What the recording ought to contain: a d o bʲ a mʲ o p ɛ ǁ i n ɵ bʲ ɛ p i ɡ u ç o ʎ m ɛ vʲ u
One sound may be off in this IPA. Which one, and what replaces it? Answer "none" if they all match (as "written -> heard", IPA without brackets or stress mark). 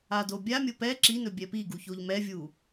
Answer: none